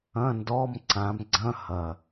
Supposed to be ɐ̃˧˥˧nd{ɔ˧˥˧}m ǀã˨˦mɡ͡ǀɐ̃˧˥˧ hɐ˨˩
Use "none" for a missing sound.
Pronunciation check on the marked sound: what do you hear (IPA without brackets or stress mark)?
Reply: ɔ˧˥˧